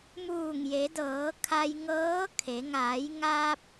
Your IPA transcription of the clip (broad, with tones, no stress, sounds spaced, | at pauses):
m uː˧˩ ŋ j e˩˧ d ɤː˩˧ kʰ a˧ j ŋ ɤː˧˥ kʰ e˩˧ ŋ aː˩˧ j ŋ a˧ p̚